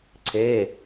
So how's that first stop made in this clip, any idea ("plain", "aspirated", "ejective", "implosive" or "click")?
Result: click